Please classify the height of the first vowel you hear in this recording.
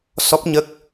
mid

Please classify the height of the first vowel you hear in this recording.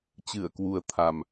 high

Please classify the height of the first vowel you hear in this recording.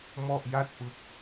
mid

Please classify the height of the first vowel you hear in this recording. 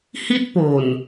high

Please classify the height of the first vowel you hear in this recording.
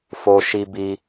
mid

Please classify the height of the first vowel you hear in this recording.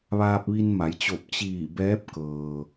low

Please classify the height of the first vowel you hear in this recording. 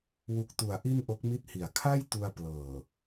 high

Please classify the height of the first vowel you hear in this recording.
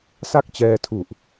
low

